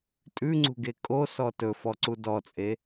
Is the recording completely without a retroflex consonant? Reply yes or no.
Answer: yes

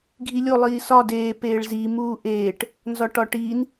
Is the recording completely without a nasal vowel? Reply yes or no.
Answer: yes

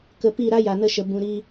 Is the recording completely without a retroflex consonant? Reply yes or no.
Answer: yes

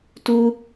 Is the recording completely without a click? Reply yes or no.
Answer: yes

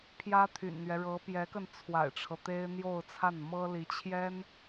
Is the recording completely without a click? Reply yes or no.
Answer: yes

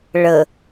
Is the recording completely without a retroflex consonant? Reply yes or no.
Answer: no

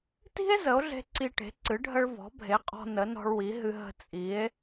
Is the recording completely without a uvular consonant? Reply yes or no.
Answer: no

